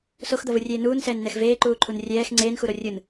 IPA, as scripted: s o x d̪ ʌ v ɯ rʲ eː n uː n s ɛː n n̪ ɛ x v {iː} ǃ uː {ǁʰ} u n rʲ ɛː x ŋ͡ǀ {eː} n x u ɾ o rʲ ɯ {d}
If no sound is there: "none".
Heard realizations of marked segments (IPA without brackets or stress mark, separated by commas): eː, ǃʰ, eː, n